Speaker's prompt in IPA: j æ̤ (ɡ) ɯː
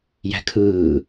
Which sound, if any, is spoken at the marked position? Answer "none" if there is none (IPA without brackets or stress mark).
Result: kʰ